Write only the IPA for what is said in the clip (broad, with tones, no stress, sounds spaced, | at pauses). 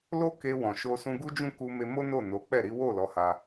l o˦ k e˧ w ɔ̃˨ ʃ o˧ s ũ˧ ɡ u˦ d͡ʒ ũ˦˨ k u˧ m e˧ m o˦ n o˦˨ n o˨˦ k͡p ɛ˦˨ ɾ i˨˦ w o˦˨ l ɔ˨˦ h a˧